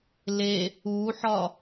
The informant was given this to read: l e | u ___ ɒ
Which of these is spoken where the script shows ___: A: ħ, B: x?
A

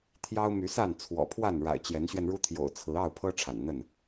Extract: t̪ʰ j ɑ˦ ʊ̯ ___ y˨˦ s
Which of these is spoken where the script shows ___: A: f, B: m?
B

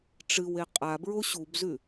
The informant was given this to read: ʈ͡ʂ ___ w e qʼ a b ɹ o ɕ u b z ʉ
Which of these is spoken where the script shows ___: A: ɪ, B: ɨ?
B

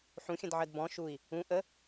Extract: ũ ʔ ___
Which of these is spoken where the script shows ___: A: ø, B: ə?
B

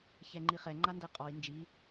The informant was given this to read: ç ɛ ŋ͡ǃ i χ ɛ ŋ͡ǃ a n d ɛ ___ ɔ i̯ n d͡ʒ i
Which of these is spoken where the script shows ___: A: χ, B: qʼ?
B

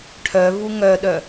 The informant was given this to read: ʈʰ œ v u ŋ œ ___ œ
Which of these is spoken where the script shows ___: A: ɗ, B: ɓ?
A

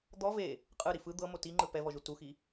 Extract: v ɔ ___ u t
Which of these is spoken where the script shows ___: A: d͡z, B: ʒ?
B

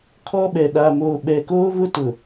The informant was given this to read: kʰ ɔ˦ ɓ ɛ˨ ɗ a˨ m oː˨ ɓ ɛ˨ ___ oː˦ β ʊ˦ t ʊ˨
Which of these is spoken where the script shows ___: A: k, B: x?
A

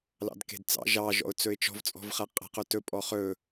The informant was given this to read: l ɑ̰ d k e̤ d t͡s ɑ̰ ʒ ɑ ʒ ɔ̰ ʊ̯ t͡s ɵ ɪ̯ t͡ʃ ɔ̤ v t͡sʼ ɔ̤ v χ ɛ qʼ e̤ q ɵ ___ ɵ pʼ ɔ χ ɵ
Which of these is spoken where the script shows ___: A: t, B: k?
A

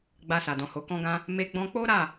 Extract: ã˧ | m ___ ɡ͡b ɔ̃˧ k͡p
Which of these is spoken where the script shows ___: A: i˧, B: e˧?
B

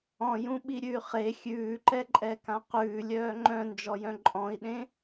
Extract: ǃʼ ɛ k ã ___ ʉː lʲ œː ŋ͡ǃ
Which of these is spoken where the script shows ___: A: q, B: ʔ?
A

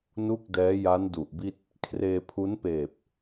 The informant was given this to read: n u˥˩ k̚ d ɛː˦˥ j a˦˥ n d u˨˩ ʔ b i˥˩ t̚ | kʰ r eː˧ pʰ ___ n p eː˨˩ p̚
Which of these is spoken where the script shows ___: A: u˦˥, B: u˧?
A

